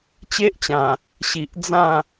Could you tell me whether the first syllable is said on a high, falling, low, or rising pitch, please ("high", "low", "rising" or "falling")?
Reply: high